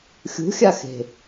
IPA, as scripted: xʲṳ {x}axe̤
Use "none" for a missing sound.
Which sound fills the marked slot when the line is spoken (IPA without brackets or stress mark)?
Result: xʲ